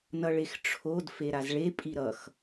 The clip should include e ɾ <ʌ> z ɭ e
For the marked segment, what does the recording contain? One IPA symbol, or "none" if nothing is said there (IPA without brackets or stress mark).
a